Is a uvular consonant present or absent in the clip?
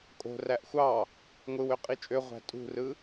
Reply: present